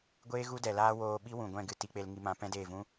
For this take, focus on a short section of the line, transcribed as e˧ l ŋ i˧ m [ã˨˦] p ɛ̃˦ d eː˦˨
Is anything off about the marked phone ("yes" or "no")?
no